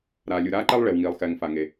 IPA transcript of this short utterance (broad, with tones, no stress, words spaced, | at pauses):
ɾaː˩lʲu˩ɾaː˥ǃɛ˥lˠ ɭe˩wŋiː˩lˠxɛː˩ŋ fa˩ŋe˩